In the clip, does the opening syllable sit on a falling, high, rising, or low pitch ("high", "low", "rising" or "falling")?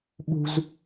high